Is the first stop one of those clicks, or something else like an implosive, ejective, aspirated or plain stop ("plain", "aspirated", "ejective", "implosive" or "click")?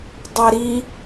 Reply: plain